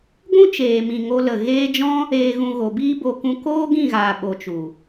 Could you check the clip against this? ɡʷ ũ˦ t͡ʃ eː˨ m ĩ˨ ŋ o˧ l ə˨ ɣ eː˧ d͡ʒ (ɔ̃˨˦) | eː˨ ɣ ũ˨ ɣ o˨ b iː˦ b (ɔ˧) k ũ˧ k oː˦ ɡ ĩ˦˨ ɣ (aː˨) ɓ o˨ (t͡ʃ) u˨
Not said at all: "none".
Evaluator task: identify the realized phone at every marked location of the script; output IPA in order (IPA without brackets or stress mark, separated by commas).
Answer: ɔ̃˦, o˧, aː˨, t͡ʃ